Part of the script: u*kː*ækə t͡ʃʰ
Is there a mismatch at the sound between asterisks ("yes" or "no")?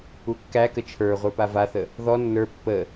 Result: no